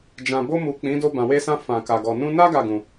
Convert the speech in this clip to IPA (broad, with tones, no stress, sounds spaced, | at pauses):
d͡ʒ ã˨ b o˧ m u˨ k͡p ĩ˨˦ d o˧ b ã˨ w e˧ s ã˧ f ã˨ k a˨ ɡ ɔ˨ n ũ˧ n a˦ ɡ a˦˨ ɡ ũ˨